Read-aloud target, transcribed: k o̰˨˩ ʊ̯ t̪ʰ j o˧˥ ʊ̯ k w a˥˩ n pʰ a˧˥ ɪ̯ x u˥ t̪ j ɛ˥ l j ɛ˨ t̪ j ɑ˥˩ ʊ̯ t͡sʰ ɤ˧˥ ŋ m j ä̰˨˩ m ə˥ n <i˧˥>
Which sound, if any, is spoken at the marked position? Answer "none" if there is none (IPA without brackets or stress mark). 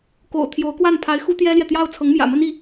i˧˥